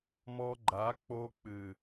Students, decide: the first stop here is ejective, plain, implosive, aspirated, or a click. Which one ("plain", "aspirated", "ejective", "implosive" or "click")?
click